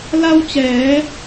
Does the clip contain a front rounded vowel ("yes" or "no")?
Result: no